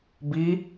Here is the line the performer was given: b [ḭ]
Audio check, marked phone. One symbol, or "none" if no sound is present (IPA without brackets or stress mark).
i